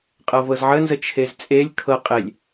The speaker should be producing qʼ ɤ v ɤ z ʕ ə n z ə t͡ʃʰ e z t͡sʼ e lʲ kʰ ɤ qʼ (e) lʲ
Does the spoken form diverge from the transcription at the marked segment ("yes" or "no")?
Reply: no